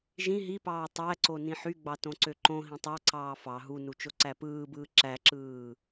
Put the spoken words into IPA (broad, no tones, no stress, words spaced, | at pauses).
ʒĩ ɦipɑː tˤæǀo nĩħyɡ͡bɑ tõǀøǃõɦĩ tˤɑǀɑː fɑ ɦunu t͡ʃoǀæpɯːbɯː ǁæǁɯː